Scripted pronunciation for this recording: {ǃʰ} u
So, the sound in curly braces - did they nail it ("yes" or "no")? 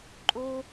no